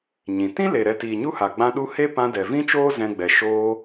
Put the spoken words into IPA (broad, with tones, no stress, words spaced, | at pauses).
ɲĩ˨ tĩ˦le˨ ɾɛ˧tiː˨ɲu˦ha˨ ɡ͡bã˧ɗu˧ he˦ pã˧dɛ˨vĩ˦t͡ʃoː˦ zɛ̃˧ɡ͡bɛ˨ ʃoː˧